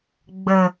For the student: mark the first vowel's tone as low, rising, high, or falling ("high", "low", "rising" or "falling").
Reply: low